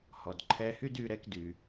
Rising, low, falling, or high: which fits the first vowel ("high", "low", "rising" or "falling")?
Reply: low